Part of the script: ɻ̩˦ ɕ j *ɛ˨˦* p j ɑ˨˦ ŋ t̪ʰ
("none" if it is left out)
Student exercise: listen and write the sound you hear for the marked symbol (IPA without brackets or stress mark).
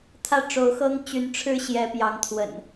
ɛ˨˦